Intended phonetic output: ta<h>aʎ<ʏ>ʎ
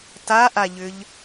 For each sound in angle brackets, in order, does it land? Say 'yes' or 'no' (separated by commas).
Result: no, yes